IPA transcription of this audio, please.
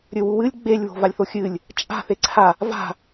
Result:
ɾʲ ɵ w u w ɨ lʲ ɡ͡b e lʲ β o̤ v a lʲ θ o xʲ ɨː lʲ | t͡ʃʼ a̤ θ e ǀʰ a | v a̤

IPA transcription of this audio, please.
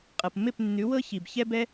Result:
qʼ ɤ˨ p m ɪ˦˨ p nː ʉ˨˦ w ɤ˦ ç i˨ b ç ɛ˦ b ɛ˦

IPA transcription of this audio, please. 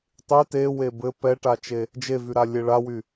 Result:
tˤ y t e w e b ɘ p ɛ ʈ a t͡ʃ e | d͡ʒ e v y ɾ a lʲ e ɭ a w y

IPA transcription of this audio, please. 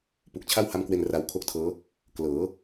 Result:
p u˨˩ k̚ t͡ɕʰ a˥˩ w h a˦˥ m k w e˧ n r a˧ w kʰ o˥˩ k̚ tʰ ɤː˦˥ | k l ɤː˩˦

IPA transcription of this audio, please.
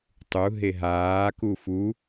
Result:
tˤ u ɦ e ɦ aː k u f u

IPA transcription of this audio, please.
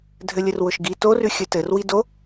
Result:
dʱ ɘ lʲ ɘ r w ʊ ʃ ɡ i t o r ʉ xʲ ɘ t ɘ r w i d o

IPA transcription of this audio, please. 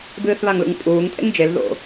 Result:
b ɨː θ β a ŋ l ṵ ŋ pʼ uː ŋ tʼ ḛ ŋ d͡ʒ e l ð o̰

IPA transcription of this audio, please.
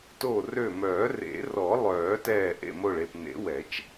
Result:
t o˧˩ r ø˧˩ m œː˨˩˦ r ḛ˨˩˦ r ɔ˨˩˦ lˠ œː˨˩˦ t ɛː˧˩ ʔ ḛ˧˩ m o˧˩ ɭ e˧˩ p n ḛ˨˩˦ w ɛ˨˩˦ t͡ʃ

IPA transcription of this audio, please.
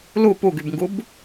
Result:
l u p u ɡ y b ŋ ɡ u b

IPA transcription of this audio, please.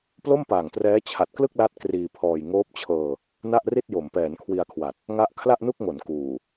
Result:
p l o˥˩ m p aː˨˩ ŋ t r ɛː˦˥ t͡ɕʰ a˨˩ t̚ k l ɯ˥˩ k̚ l a˦˥ t̚ k r iː˧ pʰ ɔː˧ j ŋ oː˦˥ p̚ t͡ɕʰ ɤː˧ | n a˥˩ ʔ r i˥˩ t̚ j o˩˦ m p ɛː˩˦ n kʰ w i˧ a̯ kʰ w a˨˩ t̚ | ŋ a˦˥ ʔ kʰ l a˥˩ ʔ n u˥˩ k̚ ŋ o˩˦ n k uː˨˩

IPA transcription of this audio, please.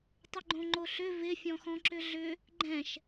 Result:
tˤ ʏ ɡ͡ǃ õ ŋ͡ǃ o ɬ ʏ v ɪ fʲ ɔ̃ x ɔ̃ ǁ ʏ ɮ ʏ | ɡ͡ǃ ɛ̃ ʃ

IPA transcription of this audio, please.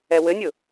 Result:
ɛ w ɘ nʲ ʊ

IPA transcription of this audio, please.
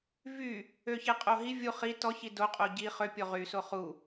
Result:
v y | ø ç e qʼ o ɦ i vʲ u χ i t ɔ ç i d o qʼ o ɟ i χ ø pʲ o ʁ y s o χ u

